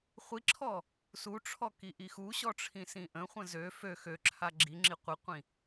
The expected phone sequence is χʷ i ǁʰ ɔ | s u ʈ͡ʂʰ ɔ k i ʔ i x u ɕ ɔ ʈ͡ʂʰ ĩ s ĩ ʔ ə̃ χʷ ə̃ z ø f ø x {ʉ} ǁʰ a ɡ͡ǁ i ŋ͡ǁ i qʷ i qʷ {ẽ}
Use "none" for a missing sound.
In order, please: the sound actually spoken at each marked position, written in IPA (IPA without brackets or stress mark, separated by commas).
ø, ĩ